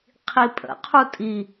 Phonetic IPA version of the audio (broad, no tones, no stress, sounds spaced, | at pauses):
qʰ i pʼ ə̰ qʰ u tʼ i